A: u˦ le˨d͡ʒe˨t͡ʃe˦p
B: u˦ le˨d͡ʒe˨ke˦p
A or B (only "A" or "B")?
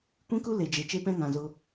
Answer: A